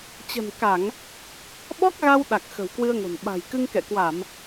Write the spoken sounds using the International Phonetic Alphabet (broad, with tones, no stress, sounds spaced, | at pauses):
t͡ɕ ə̤˨˩ n k a˧˩˨ ŋ | ɓ ɔ˦˥ k̚ ɣ a˧ w ɗ a˨˩ k̚ x ə̤˨˩ w k w ɨ˧ ə̯ ŋ o̤˨˩ n ɓ a̤˨˩ j k ɨ˧ ŋ k ɛ̰˧˨ k w a˧˩˨ m